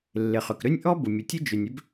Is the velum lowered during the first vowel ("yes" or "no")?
no